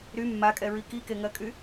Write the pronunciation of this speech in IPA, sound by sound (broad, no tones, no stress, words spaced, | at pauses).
ɾy mːakʼɛɹi kikeŋɜkʼy